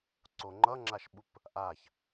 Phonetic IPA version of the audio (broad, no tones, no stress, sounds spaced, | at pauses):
ǀ o ŋ͡ǃ ʌ ŋ͡ǁ a ʃ ɓ u p | ʔ a ç